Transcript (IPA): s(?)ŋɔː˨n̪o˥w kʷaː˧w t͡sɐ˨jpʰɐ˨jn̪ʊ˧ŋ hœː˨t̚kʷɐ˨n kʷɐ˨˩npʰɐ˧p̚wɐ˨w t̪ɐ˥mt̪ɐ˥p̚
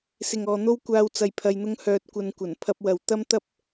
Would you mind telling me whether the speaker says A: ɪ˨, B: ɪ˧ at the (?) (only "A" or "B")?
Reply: A